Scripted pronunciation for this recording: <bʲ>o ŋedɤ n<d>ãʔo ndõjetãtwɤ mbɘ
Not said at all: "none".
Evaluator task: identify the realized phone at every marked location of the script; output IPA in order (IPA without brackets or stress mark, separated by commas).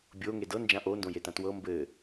bʲ, d͡ʒ